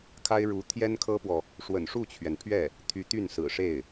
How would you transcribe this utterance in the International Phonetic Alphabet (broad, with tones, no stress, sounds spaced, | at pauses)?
kʰ a˥ ɪ̯ ɻ u˧˥ t̪ʰ j ɛ˥ n kʰ ɤ˥ p w ɔ˨ | ʂ w ə̰˨˩ n ʂ u˥˩ t͡ɕʰ ɥ ɛ˩ n pʰ ɥ ɛ˥˩ | t̪ʰ y˧˥ t̪ y˥˩ n s ɹ̩˨˩ ʂ e˥˩ ɪ̯